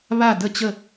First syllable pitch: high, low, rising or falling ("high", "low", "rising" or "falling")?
falling